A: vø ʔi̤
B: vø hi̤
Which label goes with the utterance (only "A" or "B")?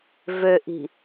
A